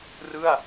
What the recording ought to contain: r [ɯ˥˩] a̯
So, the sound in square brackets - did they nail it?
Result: yes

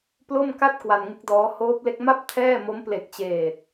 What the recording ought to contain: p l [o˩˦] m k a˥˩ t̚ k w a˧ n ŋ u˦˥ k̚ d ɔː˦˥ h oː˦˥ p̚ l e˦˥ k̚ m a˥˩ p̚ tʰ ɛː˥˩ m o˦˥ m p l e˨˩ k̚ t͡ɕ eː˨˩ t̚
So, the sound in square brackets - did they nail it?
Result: no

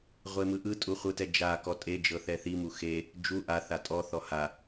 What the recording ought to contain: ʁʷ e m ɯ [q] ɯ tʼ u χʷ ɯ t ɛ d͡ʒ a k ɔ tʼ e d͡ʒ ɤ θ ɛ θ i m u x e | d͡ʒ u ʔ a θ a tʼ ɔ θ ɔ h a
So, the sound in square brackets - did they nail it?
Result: no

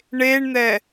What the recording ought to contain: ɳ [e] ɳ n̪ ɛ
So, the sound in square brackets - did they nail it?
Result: yes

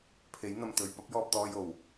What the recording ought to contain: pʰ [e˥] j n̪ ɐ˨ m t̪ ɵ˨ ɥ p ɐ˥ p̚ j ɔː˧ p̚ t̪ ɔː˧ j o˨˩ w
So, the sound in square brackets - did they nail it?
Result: no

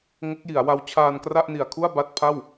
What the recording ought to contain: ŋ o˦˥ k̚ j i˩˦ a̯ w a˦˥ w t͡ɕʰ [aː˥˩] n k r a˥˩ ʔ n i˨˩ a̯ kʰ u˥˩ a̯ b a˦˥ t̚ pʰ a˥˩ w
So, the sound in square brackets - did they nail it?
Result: no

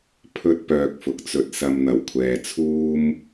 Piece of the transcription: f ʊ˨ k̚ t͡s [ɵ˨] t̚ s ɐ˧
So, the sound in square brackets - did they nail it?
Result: no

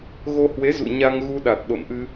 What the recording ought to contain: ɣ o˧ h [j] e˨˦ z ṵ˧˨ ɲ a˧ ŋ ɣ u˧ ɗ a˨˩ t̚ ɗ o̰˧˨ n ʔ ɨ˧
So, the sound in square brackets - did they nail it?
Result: no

